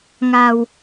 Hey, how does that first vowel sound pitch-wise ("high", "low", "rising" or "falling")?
low